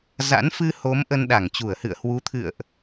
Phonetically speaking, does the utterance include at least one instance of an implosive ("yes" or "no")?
yes